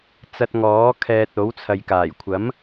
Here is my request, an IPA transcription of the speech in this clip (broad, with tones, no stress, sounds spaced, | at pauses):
t͡s ɐ˧ t̚ ŋ ɔː˨˥ kʰ ɛː˧ t̚ o˨˥ w t͡sʰ ɐ˨ j k aː˨˩ j kʷʰ ɐ˨˥ m